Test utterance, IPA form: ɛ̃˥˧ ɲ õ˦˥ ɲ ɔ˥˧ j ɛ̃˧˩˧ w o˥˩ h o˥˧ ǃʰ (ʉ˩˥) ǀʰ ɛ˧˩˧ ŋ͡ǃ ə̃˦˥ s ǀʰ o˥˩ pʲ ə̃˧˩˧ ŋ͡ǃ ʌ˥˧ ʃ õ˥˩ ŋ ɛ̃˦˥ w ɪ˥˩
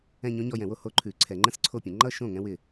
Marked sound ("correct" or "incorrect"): incorrect